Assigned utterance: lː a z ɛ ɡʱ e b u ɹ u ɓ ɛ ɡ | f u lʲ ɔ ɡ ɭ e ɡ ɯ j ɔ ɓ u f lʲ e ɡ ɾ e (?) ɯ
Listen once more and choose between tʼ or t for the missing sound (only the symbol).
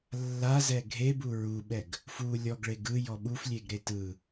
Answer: t